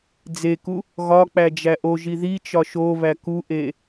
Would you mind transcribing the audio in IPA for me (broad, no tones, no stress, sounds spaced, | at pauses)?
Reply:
d͡z e k u | ɣ ɒ k͡p æ d͡ʒ æ ʔ o ʒ i ð i t͡ʃ ɒ ʃ o β æ k u ʔ e